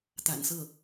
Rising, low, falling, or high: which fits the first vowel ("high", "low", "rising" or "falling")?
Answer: low